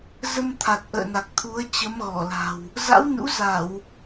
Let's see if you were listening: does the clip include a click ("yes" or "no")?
no